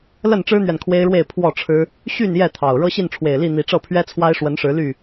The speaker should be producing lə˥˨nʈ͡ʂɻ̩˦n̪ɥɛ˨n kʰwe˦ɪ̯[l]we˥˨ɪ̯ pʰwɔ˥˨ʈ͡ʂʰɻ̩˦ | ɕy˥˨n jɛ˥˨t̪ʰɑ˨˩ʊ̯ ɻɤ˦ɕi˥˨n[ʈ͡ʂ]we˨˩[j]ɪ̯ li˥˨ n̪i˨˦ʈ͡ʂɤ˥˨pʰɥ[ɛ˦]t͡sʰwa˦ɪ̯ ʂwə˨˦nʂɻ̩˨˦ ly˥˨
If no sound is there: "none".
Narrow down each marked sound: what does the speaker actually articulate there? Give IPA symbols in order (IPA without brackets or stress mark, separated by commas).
ɻ, ʈ͡ʂʰ, none, ɛ˦